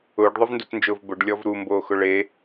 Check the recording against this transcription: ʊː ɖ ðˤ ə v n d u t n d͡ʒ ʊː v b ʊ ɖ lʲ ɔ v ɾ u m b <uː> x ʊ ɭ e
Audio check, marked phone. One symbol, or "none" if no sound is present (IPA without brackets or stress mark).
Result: oː